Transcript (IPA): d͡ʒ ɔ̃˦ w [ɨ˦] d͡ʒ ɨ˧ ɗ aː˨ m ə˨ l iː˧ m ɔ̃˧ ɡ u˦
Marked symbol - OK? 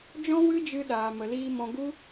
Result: yes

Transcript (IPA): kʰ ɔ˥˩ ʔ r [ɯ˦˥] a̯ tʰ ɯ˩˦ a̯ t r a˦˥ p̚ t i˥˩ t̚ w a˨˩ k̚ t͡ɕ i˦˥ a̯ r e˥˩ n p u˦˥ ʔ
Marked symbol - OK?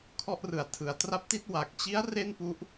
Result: no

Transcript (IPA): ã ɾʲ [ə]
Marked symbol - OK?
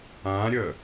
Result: yes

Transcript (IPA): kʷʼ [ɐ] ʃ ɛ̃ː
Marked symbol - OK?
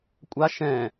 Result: no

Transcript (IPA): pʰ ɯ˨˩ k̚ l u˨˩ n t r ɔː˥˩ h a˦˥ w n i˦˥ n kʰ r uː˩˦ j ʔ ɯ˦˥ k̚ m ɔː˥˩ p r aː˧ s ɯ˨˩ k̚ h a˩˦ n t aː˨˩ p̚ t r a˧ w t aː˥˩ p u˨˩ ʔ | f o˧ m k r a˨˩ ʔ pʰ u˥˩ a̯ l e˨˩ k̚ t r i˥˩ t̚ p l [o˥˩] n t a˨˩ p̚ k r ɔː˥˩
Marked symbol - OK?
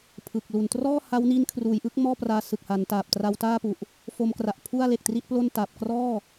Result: yes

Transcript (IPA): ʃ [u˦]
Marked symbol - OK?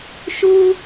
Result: yes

